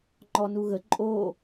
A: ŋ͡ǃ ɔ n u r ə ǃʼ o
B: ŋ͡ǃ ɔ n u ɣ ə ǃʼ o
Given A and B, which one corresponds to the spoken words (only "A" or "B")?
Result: B